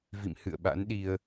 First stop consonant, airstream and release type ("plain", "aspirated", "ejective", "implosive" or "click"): implosive